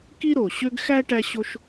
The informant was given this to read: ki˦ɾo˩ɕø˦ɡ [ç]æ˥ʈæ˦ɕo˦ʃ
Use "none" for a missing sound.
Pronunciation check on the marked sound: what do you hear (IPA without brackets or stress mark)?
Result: x